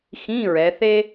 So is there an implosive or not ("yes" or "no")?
no